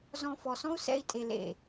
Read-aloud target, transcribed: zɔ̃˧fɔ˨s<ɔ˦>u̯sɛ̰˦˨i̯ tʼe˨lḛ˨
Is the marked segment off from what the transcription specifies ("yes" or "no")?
yes